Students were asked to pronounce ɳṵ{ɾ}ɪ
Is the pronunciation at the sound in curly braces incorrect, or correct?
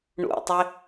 incorrect